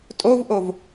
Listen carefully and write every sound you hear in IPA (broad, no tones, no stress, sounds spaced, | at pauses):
tʼ o v ʔ o v